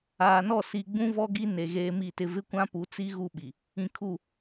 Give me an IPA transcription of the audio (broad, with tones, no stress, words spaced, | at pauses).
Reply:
aː˨nɔ˦˨ si˨ ɡ͡bũ˦vɔ˦ɡi˦ ne˨ ɣeː˦mi˦˨tɪ˦ vɪ˦kʷã˦pu˨˦t͡si˦ ɣu˦ ɓi˨ | ĩ˨kʰu˦˨